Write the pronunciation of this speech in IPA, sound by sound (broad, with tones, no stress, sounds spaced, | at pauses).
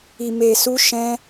i˨ m e˨ s u˧ ʃ ɛ̃˧